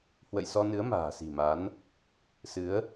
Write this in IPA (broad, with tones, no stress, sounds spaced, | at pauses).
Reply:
h w ə̰˧˨ j s ɔ˧ n ɨ˨˦ ə̯ m a̤ː˨˩ s i̤˨˩ m a˨˦ n | s ɨ˨˦ ə̯